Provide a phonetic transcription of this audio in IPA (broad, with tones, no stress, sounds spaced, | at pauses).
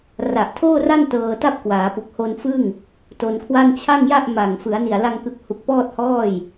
r a˨˩ ʔ tʰ oː˥˩ r a˥˩ n t ɤː˧ t a˥˩ p̚ k w aː˩˦ p u˨˩ k̚ h o˧ n f ɯ˥˩ ŋ | t o˧ n kʰ w a˥˩ n t͡ɕʰ a˥˩ ŋ j a˥˩ ʔ m a˨˩ ŋ f ɯ˩˦ a̯ n i˨˩ a̯ l a˧ ŋ k ɯ˨˩ k̚ h u˨˩ k̚ p ɔː˥˩ t̚ h ɔː˥˩ j